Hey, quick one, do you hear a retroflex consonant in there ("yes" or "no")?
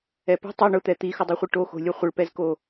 yes